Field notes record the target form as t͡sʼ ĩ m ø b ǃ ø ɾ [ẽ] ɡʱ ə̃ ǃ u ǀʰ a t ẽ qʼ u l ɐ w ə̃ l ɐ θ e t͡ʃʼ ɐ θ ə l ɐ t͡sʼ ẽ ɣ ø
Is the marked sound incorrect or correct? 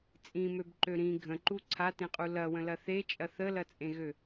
incorrect